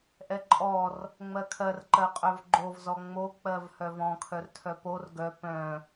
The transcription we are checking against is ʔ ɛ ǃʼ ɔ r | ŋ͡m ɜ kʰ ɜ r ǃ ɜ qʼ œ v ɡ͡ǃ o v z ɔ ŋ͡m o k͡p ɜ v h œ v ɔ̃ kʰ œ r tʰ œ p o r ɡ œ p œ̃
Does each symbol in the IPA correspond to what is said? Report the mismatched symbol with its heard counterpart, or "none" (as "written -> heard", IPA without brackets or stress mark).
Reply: none